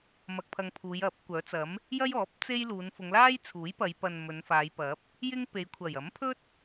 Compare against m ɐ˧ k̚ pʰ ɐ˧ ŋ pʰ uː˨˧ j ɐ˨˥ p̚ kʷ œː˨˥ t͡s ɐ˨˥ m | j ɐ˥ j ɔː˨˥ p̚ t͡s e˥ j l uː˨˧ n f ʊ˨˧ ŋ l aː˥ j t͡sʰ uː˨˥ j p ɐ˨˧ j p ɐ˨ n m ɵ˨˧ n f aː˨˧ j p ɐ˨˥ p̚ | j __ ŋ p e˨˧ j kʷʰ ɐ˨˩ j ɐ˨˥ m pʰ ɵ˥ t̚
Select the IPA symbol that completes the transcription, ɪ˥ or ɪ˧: ɪ˥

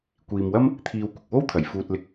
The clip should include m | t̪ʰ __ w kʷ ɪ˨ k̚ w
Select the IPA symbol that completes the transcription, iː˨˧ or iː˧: iː˧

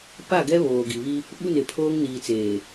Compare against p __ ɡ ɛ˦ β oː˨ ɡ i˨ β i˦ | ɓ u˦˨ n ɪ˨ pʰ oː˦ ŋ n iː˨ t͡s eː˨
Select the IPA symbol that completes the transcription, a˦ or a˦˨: a˦˨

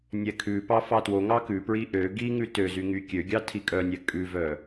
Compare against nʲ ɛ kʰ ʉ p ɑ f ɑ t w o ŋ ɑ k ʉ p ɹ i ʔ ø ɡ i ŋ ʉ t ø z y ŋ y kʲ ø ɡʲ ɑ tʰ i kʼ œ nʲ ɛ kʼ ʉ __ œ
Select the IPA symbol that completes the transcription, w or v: v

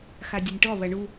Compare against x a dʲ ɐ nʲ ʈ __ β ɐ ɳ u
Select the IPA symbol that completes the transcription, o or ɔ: ɔ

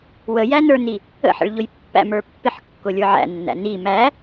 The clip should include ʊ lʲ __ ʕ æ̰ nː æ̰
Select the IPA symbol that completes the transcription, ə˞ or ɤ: ə˞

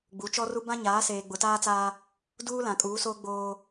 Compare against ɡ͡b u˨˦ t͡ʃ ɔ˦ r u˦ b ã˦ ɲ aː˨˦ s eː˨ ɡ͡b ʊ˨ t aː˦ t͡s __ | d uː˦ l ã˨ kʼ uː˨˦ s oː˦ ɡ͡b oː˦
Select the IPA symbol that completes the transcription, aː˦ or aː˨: aː˦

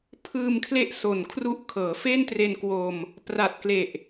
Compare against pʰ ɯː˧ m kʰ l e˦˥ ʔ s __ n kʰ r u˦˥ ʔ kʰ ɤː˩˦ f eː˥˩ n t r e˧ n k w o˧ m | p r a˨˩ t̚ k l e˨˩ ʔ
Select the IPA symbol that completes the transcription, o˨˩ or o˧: o˨˩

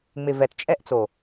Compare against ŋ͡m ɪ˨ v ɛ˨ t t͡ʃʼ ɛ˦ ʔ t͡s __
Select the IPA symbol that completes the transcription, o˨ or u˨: o˨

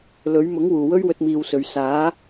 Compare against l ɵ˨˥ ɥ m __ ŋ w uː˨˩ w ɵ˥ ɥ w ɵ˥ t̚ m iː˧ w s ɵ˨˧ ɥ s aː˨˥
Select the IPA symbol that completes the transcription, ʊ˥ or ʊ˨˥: ʊ˨˥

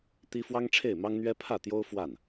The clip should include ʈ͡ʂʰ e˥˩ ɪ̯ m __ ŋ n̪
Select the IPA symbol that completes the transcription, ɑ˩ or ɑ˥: ɑ˥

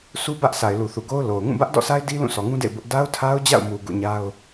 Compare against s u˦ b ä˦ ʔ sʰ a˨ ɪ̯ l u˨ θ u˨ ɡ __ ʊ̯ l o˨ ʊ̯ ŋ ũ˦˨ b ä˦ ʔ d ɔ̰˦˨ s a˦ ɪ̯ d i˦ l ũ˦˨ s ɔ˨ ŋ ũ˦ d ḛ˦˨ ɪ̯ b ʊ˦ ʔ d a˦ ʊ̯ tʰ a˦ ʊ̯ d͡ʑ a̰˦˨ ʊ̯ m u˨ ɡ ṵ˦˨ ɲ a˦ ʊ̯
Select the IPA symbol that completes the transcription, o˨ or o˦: o˦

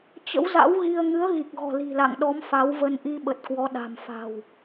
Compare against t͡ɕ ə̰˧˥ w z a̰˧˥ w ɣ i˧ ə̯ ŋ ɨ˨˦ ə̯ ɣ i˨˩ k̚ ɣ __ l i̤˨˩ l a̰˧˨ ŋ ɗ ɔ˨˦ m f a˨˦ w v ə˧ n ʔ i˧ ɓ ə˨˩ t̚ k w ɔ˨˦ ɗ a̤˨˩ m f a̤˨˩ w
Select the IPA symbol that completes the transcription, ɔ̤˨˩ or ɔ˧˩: ɔ̤˨˩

